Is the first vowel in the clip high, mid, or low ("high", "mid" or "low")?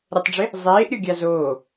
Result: mid